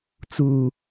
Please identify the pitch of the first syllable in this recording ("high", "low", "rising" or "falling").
low